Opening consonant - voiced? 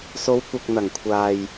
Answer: no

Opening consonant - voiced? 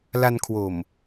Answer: yes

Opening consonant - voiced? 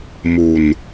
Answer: yes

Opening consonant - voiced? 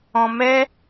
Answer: yes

